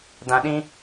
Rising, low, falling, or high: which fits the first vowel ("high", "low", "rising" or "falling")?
low